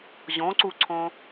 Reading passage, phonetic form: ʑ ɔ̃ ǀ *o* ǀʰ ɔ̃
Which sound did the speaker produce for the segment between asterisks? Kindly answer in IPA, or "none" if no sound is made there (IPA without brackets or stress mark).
u